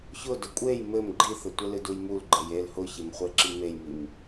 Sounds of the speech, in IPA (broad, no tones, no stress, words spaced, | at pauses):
çʊ dʊkʷʼej mɘm ɡ͡ǃiθɘtʷɘlɨ dujmul ɡ͡ǃejel hʊçemχʷe ǁimejmim